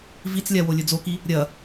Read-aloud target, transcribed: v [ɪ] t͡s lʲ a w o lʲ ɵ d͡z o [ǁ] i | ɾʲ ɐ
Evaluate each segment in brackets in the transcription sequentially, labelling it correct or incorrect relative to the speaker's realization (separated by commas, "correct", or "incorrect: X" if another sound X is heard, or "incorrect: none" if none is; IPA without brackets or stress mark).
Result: incorrect: i, incorrect: k